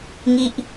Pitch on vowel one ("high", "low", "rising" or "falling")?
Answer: high